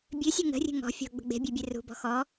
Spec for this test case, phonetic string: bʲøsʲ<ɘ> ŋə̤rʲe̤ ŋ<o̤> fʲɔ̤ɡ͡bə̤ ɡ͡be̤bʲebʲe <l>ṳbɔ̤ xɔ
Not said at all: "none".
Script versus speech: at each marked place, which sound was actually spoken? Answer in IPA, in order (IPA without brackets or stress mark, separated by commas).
e, ɔ̤, r